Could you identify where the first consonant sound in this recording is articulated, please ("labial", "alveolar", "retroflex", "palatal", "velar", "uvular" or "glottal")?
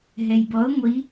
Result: glottal